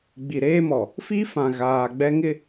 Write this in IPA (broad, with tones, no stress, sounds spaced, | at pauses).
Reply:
ɡ͡b i˨ ɾ eː˦ m ɔ˨ | f i˦ f ã˨ ɣ aː˨ ɡ͡b ɛ˦ ŋ ɪ˦